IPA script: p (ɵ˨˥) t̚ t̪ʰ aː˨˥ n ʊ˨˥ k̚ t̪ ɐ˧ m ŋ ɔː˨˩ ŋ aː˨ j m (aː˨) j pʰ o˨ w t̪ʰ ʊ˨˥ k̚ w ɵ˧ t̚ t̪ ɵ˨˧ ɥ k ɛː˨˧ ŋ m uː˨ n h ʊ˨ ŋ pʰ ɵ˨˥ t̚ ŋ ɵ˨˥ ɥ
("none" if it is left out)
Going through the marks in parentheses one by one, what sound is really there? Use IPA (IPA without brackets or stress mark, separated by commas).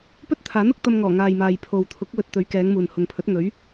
ɵ˥, aː˨